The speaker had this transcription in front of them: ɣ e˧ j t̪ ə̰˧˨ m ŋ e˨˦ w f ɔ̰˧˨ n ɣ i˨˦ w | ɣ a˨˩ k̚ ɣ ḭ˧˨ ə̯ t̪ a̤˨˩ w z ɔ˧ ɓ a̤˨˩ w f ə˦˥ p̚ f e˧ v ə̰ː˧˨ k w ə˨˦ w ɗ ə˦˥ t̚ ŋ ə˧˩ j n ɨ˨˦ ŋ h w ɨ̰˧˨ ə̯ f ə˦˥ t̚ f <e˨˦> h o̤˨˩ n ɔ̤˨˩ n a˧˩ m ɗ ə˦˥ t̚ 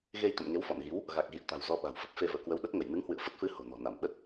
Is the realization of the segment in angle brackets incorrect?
yes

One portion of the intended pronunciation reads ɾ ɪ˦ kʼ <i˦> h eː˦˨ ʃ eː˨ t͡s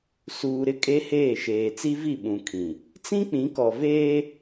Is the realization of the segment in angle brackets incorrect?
yes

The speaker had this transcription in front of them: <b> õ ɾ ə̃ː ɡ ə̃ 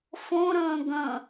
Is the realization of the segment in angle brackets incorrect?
yes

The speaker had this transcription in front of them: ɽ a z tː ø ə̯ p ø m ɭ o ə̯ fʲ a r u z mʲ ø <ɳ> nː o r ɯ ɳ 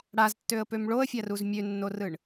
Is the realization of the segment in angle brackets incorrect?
yes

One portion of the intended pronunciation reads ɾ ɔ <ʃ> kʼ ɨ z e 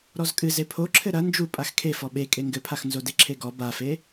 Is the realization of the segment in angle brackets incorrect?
yes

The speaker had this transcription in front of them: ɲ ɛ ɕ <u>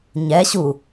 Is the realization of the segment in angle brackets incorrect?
no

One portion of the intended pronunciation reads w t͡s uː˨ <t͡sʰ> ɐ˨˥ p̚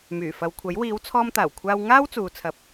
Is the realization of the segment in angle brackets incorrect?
no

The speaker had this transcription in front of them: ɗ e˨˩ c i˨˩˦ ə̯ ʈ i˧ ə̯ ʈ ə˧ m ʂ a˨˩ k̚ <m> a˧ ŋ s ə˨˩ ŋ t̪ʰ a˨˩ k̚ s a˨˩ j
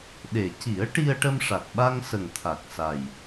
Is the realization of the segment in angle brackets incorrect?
yes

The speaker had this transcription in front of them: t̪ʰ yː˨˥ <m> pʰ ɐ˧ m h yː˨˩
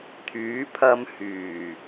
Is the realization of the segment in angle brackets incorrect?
yes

